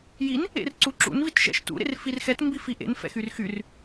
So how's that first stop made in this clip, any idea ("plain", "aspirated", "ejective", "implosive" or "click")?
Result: click